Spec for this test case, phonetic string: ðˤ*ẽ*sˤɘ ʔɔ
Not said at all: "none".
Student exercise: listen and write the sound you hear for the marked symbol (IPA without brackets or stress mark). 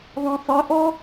ẽ